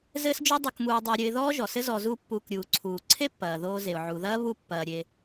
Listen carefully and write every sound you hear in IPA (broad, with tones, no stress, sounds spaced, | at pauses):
z ɘː˥ s d͡ʒ o˥ dˤ o˧ k m uː˧ dˤ ɘ˧ ʊ̯ ɾʲ ɘ˧ ɪ̯ ð ɔː˥ ʒ ɔ˩ s ɘ˥ z ɔ˧ z u˥ pː uː˧ k ɾʲ uː˩ ǀʰ uː˩ ǀʰ e˥ pː ɐː˩ ð oː˧ z e˩ ʊ̯ ʕ u˩ ð ɐː˥ β u˧ pː ɐː˩ ɾʲ e˩